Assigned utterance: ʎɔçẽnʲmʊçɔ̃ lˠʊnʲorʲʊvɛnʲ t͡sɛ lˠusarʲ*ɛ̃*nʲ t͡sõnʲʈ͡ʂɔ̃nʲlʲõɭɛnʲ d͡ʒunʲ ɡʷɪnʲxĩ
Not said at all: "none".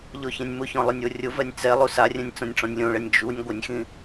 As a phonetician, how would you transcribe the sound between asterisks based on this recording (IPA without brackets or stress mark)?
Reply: ɛ̃